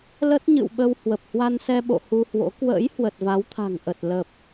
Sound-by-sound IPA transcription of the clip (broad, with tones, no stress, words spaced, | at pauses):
lə˦˥t̚ɲɨ̰˧˨wɓə˧w hwə˨˩p̚hwa˧nsɛ˧ ɓo̰˧˨hu˧hwo̰˧˥ kwə̰ː˧˥jhwə˨˩t̚ va˨˦wt̪ʰa̤˨˩ŋ ʔə˨˩t̚ lə˨˩p̚